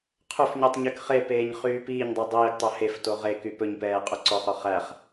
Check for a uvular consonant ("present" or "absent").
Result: present